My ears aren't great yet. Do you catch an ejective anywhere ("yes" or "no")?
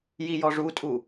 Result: yes